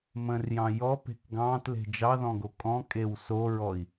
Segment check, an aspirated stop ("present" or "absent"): absent